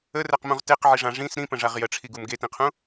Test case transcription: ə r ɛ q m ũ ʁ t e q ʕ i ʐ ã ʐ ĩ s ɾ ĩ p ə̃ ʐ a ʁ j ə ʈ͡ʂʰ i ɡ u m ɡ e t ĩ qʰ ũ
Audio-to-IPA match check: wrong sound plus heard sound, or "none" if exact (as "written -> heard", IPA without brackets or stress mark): none